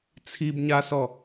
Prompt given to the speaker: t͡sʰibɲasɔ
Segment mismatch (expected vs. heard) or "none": none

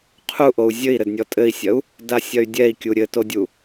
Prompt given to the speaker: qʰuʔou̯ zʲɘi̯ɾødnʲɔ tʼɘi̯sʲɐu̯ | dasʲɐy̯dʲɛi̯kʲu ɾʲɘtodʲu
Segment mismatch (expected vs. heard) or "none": ø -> ɘ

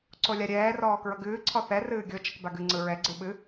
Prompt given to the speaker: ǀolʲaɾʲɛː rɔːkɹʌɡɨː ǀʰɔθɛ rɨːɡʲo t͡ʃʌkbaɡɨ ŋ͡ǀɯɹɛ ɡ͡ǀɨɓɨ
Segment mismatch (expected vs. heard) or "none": none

